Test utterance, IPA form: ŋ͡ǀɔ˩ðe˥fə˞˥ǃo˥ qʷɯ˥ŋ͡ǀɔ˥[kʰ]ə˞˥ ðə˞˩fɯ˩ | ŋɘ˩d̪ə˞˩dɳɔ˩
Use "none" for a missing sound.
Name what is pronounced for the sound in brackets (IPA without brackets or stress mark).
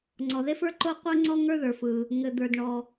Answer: ŋ